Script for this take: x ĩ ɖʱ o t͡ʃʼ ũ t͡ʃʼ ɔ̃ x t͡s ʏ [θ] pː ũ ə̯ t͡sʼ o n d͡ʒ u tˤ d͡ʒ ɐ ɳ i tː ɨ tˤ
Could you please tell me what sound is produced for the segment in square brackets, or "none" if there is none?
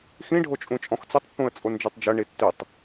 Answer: tˤ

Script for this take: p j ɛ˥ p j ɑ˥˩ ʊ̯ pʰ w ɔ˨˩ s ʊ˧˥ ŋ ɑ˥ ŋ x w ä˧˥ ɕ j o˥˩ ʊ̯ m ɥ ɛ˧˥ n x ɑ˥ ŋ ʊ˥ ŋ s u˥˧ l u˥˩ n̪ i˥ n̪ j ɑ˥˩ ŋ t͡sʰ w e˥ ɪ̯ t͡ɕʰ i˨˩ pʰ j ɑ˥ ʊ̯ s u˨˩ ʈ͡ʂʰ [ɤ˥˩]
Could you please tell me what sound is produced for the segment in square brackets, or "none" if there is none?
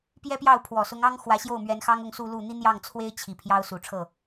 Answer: ɤ˥˩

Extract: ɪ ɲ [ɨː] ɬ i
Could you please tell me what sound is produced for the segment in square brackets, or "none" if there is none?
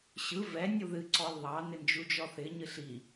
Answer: ɨ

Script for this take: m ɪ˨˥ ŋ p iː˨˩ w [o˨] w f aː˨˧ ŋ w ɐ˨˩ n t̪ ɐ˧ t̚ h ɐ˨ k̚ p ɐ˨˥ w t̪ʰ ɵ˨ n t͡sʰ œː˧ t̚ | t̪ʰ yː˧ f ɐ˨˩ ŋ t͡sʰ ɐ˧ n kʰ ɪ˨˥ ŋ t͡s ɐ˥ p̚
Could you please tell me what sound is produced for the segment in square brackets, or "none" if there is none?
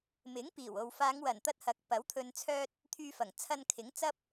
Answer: o˨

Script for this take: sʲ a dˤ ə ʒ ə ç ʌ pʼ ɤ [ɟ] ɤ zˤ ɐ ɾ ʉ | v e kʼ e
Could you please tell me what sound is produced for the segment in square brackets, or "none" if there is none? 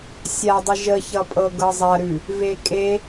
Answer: ɡ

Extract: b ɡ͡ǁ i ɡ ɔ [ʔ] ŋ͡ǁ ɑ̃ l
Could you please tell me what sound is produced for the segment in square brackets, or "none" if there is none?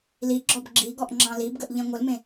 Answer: ʔ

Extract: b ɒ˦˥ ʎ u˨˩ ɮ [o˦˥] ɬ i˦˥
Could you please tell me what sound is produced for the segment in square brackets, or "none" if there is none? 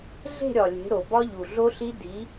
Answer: o˦˥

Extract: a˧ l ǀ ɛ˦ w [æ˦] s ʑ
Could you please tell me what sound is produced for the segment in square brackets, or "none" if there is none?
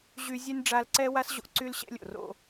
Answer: a˦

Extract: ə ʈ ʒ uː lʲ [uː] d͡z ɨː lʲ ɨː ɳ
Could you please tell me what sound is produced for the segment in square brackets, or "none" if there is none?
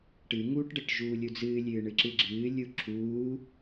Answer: u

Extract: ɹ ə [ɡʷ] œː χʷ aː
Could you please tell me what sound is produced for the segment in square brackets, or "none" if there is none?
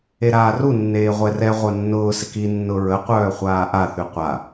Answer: qʷ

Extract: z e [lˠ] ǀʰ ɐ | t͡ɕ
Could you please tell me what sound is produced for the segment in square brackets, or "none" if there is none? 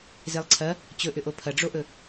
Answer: lˠ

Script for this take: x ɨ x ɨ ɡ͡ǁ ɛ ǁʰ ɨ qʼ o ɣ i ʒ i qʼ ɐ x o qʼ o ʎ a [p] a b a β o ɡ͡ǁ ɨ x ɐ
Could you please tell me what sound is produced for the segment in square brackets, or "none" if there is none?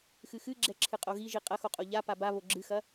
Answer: p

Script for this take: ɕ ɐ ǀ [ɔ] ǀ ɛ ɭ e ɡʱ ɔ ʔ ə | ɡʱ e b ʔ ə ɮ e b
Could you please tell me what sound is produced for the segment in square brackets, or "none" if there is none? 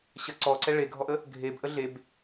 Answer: ɔ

